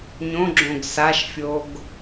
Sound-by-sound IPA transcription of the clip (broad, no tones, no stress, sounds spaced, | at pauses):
ɲ õ ɡ͡ǁ õ ɡ s a ʃ fʲ o ɡ